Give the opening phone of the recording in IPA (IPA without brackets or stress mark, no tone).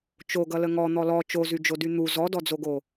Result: t͡ʃ